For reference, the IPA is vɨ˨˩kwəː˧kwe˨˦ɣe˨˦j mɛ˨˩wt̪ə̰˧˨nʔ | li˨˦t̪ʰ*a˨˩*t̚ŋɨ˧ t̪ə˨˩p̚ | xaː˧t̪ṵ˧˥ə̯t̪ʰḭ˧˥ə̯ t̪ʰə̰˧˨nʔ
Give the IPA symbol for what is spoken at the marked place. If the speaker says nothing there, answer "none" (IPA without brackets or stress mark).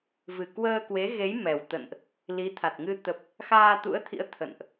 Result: a˨˩